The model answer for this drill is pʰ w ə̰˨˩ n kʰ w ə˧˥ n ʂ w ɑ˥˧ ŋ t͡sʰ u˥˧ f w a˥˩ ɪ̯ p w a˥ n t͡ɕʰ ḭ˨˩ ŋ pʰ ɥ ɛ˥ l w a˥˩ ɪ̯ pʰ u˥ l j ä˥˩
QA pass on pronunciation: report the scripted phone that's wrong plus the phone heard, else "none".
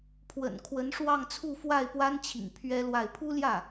none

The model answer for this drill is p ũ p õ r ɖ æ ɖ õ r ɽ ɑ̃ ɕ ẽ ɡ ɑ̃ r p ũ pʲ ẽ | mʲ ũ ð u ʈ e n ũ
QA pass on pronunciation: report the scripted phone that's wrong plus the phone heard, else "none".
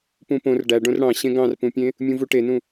ð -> v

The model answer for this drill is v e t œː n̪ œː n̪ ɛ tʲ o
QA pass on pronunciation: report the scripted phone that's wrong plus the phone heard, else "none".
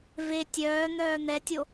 t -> tʲ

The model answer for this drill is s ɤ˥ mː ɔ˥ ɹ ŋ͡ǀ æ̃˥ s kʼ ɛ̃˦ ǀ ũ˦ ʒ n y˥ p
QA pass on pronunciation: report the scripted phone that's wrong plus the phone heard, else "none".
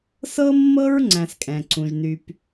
ɔ˥ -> ɤ˥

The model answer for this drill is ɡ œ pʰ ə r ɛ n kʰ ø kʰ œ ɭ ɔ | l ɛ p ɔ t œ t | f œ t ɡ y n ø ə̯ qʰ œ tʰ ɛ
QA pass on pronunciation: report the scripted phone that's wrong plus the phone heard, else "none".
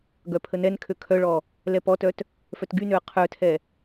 r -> n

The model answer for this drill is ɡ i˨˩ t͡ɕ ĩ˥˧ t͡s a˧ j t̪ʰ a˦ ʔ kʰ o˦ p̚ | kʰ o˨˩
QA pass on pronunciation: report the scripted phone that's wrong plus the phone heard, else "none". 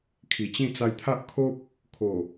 ɡ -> kʰ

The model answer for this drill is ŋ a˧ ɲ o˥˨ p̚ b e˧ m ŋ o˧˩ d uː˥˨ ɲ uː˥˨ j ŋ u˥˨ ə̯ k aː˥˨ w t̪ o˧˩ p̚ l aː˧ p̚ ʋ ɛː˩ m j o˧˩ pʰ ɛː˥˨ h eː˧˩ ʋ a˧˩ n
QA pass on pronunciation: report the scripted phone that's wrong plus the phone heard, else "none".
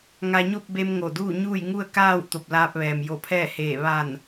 none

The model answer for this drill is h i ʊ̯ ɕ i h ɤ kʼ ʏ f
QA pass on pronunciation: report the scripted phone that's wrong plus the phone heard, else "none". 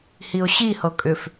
none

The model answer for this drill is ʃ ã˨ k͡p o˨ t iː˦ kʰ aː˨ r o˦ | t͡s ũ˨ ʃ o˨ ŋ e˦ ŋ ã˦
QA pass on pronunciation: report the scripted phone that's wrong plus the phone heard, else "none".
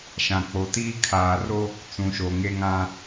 none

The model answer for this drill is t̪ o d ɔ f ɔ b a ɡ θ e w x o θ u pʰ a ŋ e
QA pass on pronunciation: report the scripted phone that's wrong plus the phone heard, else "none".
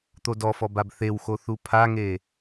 ɡ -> b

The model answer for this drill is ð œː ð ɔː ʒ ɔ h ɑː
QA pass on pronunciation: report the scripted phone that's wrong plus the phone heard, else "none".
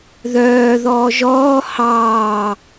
ɔ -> ɔː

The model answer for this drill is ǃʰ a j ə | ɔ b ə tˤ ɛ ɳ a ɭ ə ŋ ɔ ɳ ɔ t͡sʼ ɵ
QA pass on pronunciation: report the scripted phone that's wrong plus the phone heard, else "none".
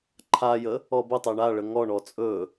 none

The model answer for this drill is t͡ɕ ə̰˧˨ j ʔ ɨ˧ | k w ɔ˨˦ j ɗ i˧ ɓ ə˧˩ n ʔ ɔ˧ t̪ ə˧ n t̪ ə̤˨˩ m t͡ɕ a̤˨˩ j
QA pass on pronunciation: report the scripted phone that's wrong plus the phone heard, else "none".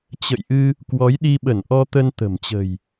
a̤˨˩ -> ə̤˨˩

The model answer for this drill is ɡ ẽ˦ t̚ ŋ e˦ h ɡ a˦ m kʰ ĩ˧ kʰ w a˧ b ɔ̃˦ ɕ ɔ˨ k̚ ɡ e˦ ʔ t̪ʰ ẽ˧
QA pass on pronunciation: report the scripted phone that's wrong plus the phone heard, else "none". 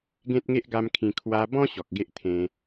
h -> ʔ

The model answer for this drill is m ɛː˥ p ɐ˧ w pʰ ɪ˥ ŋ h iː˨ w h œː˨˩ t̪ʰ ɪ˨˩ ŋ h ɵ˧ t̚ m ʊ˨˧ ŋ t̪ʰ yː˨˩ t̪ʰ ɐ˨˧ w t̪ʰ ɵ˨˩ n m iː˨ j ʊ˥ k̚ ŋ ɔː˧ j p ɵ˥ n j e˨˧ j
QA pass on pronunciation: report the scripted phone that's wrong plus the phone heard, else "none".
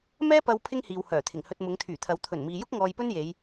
none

